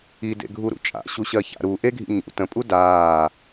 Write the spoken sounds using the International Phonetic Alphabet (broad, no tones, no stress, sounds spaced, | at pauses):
i d ḛ ɡʱ u ɾ ṵ t͡ʃʼ a̰ ɕ u ɕ ɜ ç a̰ ɾ u ʔ e ɡʱ ḭ ɲ ṵ t ə̃ pʼ u d aː